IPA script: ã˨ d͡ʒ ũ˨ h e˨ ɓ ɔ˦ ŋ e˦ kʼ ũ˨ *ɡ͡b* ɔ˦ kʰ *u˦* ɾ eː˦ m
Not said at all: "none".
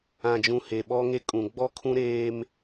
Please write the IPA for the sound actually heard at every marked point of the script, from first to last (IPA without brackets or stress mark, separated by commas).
ɡ͡b, ũ˦